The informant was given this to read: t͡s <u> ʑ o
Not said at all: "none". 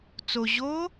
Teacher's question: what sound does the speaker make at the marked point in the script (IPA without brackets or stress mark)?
o